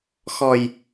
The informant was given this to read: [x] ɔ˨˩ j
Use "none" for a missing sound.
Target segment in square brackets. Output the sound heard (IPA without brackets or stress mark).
x